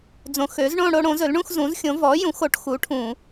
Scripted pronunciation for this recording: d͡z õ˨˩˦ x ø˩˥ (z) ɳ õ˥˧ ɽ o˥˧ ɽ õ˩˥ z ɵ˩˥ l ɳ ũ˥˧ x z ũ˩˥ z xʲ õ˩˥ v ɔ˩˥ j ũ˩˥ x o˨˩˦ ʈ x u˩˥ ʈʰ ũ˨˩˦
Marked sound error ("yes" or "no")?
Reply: no